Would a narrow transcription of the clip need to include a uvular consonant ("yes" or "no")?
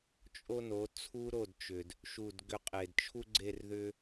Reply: yes